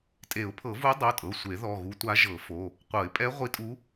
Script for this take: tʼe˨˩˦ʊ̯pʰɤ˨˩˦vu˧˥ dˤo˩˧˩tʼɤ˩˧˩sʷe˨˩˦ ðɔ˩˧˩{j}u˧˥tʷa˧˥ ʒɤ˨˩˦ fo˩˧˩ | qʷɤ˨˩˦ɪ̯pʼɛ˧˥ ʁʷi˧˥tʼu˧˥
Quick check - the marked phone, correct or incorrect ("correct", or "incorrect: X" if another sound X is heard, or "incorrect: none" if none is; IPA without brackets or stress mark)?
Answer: incorrect: ɣ